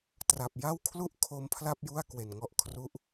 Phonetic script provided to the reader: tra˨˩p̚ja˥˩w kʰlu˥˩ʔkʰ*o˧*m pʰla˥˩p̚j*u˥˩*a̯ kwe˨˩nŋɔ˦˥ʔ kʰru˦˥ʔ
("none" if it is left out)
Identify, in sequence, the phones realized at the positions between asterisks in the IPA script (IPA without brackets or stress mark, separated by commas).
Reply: o˦˥, u˥˩